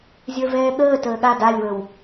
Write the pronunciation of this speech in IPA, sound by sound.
zʲə˞vɛːɠəː təːɠa dalʲwəw

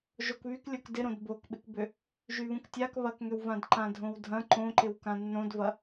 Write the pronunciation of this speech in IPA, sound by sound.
ʒokβyk lʲokdɪɾõd bokɓɪkbʏ | ʒyβũktʲak βɐkŋʏwvãd ǃãdʱõwdʱɐ̃ ǃõǃɪw kãnːõdvɐ

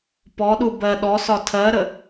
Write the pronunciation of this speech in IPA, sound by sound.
pɔɗu bɜ ɗɔsɒ tʰɜɾə

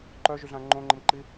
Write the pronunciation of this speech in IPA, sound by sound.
ǃœʒyɮã ŋ͡ǃõŋ͡ǃəmǃi

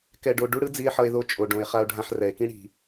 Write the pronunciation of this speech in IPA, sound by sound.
kɛ˧ɖo˧ ɖu˥ɽɯ˥ d͡zi˧e̯ħʌ˧e̯ðo˧ t͡ʃʼo˩ɖõ˩e̯ χa˧o̯ɖʱã˧ħrɛ˩e̯kĩ˥ ɽi̤˩

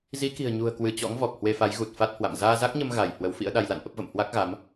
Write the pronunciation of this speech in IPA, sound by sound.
zi˨˦ki̤˨˩ə̯ɲṳ˨˩ə̯kwɨ˧˩ t͡ɕɔ̰˧˥ŋ vɔ˨˩k̚hwe˧fa˨˦j ɣu˨˩t̚ fa˦˥t̚hwa̰˧˨m zaː˧za˦˥k̚ɲə˧m ɣa˧˩j hwə˨˦wfḭ˧˥ə̯ɗa˧j la̰˧˨nʔə˦˥p̚və̰˧˨m hwa˦˥k̚ɣa˨˦m

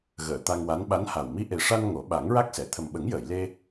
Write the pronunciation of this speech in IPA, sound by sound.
ɣəː˨˩˨ t̪a˧ŋwa˧˥n ɓa˧˥nha˨˩w mi˧ʔe˨˩ʂa˧n ŋo˨˩˦ ɓa˨˩˦ŋɹa˦˥k̚sɛ˨˩˨ t̪ʰə˨˩mɓə˨˩˦ŋjəː˨˩˨jle˧

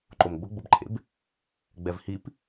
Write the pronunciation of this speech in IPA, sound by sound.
ǃomɡ͡bʊɡ͡bʊbǃʰḛb | ɡ͡bɛvhip

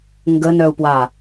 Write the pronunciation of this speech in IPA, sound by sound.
ŋɡənœu̯pwa

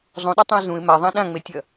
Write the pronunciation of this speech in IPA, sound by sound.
zˤũɗɐtˤũɪ̯ zũɪ̯ maðˤã ɗãŋ͡metʲɐ

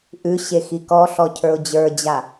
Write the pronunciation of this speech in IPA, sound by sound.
ʔʉɕe xikɔɬɔ cʰə˞ʊ̯d͡ʑə˞d͡ʑa

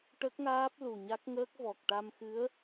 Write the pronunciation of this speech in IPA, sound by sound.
ʈə˦˥k̚ŋaː˦˥p̚ lu˨˩ɲa˦˥k̚ŋəː˦˥k̚ vɔ˨˩k̚ʈa˧mxɨ˧˥ə̯

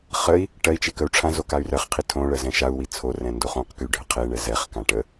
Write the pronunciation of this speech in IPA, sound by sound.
χəi̯ | ʈɜi̯t͡ʃe kəu̯ʈ͡ʂʰãzo kay̯rɜχqʰi tʰõ ɭɜzɛ̃ʃau̯wi t͡sʰorɛ̃ ndoχõqky ɖʱəqʰeɳɛ zɛχkã ʈə

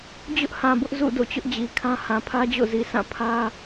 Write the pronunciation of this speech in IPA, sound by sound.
d͡ʑʊ˦ʔhã˨bʊ˦ʔ zṵ˦˨ do̰˦˨t͡ɕʊ˦ʔd͡ʑi˨kʰã˦ hã˨pʰä˦d͡ʑo̰˦˨zi˨ sʰã˦˨pʰä˦

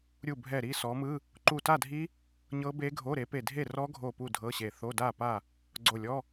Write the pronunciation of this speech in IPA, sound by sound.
ɾʲu˧˩bʱɛ˧˩ ɾi˥˨sɔ˨˦mɯ˧˥˧ | ǃu˧˩ta˥˨dʱi˦˥ | ɲɤ˦˥be˦˥ɡʱo˧˥˧ ɾe˨˦pe˧˩dʱe˥˨ rɔ˦˥ɡʱo˧˩ pu˥˨dʱɤ˧˥˧ɕe˧˩ θo˧˥˧da˥˨pa˥˨ | ɡ͡ǀo˧˩lʲɔ˧˥˧

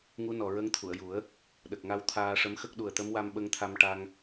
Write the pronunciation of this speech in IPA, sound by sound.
ŋu˧˥ nɔ˨˩ ɹə˧˥ŋ t̪ʰu˨˩˨ə̯ju˨˩˦ə̯ | ɗə˨˩k̚ŋa˧w t̪ʰaː˧ʂə˧˥mxə˦˥k̚ ɗu˨˩ə̯t̪ə˧˥mwa˧m ɓə˧ŋt̪ʰa˧mʈa˧ŋ

